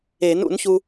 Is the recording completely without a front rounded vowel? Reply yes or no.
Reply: yes